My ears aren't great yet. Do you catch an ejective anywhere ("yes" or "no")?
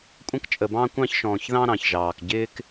yes